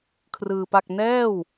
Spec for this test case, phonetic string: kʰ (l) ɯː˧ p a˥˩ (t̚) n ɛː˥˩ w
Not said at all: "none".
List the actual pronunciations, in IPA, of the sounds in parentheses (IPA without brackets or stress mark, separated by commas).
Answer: r, k̚